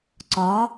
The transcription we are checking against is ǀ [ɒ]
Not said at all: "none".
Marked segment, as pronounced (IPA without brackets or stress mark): ɒ